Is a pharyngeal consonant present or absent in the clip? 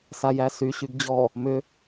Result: absent